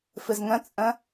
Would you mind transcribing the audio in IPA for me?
f ɨ z ŋ ə̃ t͡sʼ ə̃

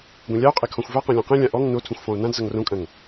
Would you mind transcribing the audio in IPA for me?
ɡʷ ẽ lʲ a o̯ qʼ e kʰ ɔ̃ xʷ v a q ɔ̃ lʲ õ q ẽ lʲ ã ʔ ɔ ŋ n o tʰ ũ xʷ f ɔ̃ o̯ n ã d z ʌ ŋ r õ kʼ ɐ̃ ŋ

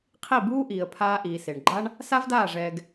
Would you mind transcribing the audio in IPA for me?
qʰ i˦˨ b uː˦ ʔ iː˨ ə̯ pʰ aː˧ ʔ iː˨ s e˨ ɳ ɡ͡ǃ a˦ ɳ | s a˦ v d aː˦˨ ʐ ɛː˧ ɡ

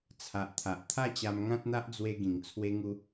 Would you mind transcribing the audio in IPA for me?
t͡sʰ a˨ ʔ t̪ʰ a˨ ʔ t̪ʰ a˥˧ t͡ɕ a˧ m ŋ ã˦ t̚ n̪ a˦ ʔ d͡z w e˧ ɡ ĩ˨˩ ŋ t͡sʰ w e˦ ŋ u˦

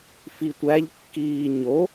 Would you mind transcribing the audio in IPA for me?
f i tʷ æ ʎ kː iː ɲ o

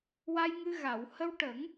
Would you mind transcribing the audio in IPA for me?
w a˧ j ŋ ɨ˧ ɣ a˨˩˨ w h ə˧ w ʈ ə˨˩˦ ŋ

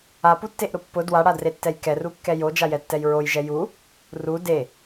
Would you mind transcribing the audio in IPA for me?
a p u tː e ʔ ɾ ʊ pː ʊ d w a ɽ a d r e tː ɛ j k ɛ r u kː ɛ j o d͡ʒ a j ɛ tː ɛ j ɹ o j ʒ ɛ j u | r u d e

